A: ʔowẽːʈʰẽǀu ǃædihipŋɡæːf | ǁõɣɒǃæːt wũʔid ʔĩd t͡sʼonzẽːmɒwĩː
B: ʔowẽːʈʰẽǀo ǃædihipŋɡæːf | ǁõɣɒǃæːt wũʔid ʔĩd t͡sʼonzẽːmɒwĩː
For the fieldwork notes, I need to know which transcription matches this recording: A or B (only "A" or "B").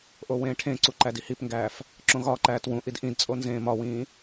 A